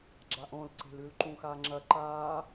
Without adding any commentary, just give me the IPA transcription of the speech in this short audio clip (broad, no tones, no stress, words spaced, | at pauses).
ɡ͡ǁaʔõlǀe̤lʉl ǃũxaŋ͡ǁɐ ǃaː